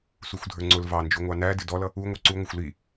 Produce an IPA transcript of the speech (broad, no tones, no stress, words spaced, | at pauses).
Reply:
suxʷdʱə˞ŋ͡ǀʊl vɑnd͡ʒuŋʷɑ nædɪ dɔlʌ | u ŋʷɑǀuŋʷɪxʷ li